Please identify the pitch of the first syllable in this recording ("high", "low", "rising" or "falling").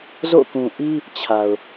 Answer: falling